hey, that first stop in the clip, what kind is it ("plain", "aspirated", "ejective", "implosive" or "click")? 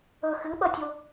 implosive